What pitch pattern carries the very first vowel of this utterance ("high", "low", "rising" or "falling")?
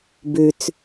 low